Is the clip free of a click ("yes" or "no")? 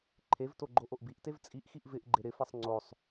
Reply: no